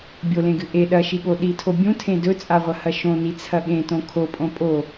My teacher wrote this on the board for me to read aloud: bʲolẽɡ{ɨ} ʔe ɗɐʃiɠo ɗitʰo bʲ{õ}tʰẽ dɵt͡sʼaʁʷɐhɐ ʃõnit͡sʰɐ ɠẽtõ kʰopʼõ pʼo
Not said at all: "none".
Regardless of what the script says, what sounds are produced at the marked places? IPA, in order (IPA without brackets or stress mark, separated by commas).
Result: ɨ, ũ